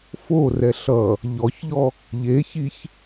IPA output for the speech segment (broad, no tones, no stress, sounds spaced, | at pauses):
f o r ɛ ɬ ʌ | ʎ ɔ ç ʎ ɔ | ʎ e ç i ç